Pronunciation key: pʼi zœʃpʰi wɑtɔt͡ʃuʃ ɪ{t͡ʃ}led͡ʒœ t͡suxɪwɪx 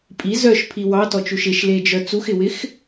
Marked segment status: incorrect: ʃ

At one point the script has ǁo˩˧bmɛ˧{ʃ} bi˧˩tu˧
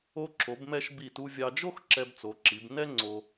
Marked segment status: correct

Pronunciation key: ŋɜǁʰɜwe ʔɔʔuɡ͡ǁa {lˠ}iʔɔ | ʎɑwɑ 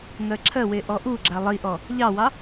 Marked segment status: correct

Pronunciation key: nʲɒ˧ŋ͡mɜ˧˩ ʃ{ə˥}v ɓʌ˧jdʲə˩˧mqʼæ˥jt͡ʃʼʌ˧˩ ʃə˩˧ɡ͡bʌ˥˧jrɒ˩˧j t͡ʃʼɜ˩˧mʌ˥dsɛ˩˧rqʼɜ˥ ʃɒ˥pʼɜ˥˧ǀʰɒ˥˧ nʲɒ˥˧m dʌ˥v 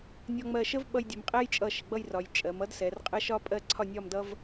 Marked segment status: correct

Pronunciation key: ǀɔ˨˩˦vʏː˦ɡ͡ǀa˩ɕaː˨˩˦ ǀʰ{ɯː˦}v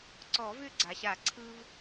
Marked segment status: correct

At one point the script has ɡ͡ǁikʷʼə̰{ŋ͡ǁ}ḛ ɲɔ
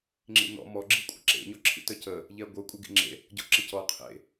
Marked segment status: incorrect: ǁ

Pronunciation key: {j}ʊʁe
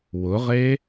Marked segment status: incorrect: w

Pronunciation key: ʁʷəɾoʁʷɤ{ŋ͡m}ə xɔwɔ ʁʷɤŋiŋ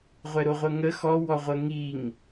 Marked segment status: incorrect: ŋ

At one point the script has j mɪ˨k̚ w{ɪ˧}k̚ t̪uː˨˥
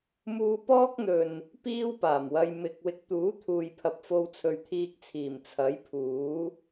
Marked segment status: correct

